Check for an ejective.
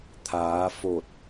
absent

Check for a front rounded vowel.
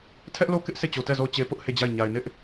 absent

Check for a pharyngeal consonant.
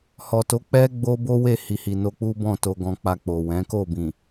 absent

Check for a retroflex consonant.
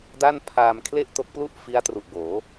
absent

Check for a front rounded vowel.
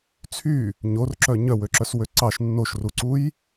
present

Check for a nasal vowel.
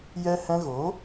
present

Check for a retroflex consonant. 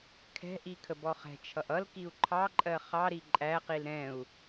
absent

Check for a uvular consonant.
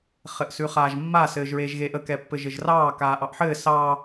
present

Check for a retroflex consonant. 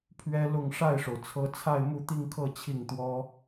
present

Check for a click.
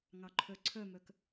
present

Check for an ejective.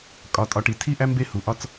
present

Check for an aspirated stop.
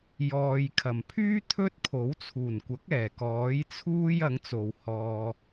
present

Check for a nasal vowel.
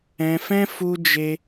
present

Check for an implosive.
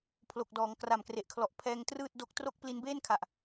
absent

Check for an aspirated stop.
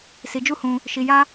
absent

